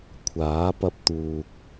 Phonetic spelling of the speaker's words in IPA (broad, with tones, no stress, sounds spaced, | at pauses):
kʷʰ aː˨˥ p ɐ˧ p̚ t̪ uː˨ k̚